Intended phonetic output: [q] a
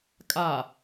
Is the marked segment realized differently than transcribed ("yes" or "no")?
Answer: yes